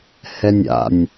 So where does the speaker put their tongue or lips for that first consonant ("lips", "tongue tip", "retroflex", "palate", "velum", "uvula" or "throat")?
throat